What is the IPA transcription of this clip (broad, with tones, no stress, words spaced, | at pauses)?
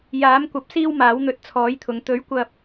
jaː˨˥mkʷɐ˨˥p̚ siː˥wmaː˨˥wn̪ɵ˧t̚ t͡sʰɔː˨˥jt̪ʰʊ˨ŋ t̪ɵ˨˥ɥ kʷɐ˧p̚